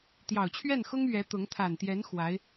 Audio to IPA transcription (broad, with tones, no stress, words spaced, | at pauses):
t̪jɑ˨˩ʊ̯t͡ɕʰɥɛ˥˩nxʊ˥ŋ ɥɛ˧˥t̪ʊ˧˥ŋ t̪ʰa˨˩nt̪jɛ˧˥n xwa˧˥ɪ̯